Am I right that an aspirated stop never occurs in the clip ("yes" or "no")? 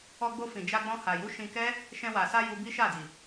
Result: yes